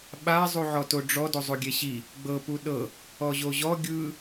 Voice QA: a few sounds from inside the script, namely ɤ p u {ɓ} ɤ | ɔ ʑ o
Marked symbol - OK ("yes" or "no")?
no